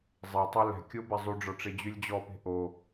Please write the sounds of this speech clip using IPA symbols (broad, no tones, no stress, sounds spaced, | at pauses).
zˤ e tˤ ɛ l ɛ̤ kʲ o b ɛ zˤ y ɖ͡ʐ ɔ ʈ͡ʂ e d͡ʑ y lʲ d͡ʑ ɔ p e̤ ʔ o